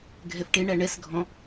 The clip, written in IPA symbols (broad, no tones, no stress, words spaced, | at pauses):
ɡʱɛfʈe ɳæɳɛs ɡʱɔ̃